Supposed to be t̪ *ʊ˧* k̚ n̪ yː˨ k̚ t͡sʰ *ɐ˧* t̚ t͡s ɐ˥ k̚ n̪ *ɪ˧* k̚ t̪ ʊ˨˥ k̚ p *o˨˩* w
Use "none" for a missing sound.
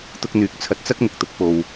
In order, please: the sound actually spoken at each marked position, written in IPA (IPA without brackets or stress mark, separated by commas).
ʊ˧, ɐ˧, ɪ˧, o˧